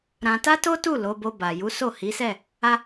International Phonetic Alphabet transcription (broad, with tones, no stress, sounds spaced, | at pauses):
ɾ ã˧ t a˦ t o˦ t u˦˨ l o˨˦ b o˧ b a˨ j u˨˦ s o˦˨ h i˨˦ s ɛ˦˨ | a˦